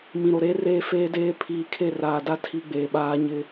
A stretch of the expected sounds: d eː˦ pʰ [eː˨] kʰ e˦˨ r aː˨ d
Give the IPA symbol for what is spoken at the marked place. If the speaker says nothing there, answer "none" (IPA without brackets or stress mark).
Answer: iː˨